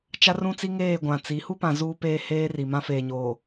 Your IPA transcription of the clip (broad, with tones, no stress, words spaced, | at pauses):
t͡ʃa˦rũ˦t͡si˦ŋeː˦˨ ɡʷã˨ t͡si˨˦ hu˦pã˨ zuː˦peː˦ heː˦ri˨mã˦ feː˨ɲoː˨